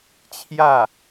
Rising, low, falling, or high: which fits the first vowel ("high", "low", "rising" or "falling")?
falling